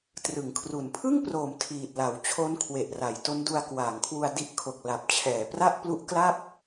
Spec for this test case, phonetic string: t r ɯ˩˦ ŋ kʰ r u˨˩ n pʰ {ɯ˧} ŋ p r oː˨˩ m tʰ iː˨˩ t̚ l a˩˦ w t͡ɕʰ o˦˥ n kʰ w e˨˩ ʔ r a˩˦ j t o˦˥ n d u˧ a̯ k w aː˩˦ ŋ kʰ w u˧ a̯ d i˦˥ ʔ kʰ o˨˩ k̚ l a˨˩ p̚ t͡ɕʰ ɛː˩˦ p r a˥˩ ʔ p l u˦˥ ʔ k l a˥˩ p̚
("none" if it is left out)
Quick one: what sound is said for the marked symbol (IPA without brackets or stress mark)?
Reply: ɯ˥˩